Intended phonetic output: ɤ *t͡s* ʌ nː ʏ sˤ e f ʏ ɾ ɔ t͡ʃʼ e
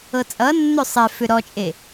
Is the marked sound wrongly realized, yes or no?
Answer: yes